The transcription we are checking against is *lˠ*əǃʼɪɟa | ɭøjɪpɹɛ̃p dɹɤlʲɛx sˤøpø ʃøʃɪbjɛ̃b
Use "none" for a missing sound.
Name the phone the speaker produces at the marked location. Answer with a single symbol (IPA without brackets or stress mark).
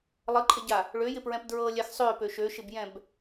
lˠ